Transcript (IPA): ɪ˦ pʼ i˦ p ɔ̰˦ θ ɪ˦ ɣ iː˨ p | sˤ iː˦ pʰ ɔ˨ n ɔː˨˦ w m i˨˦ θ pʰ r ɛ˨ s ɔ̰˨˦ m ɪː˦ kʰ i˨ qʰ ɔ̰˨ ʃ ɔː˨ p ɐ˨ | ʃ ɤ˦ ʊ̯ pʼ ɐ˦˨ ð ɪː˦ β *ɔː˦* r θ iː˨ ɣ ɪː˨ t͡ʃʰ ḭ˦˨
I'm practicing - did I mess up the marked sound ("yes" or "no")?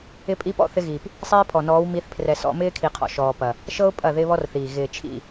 yes